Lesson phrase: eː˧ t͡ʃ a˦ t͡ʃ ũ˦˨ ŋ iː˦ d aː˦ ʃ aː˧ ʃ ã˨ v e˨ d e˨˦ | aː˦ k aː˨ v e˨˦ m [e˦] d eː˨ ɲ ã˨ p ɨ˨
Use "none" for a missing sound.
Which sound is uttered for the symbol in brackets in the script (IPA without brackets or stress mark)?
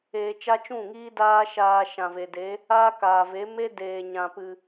e˦